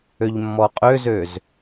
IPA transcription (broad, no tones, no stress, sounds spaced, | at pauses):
ø ʎ mː ɔ qʼ ø z ø z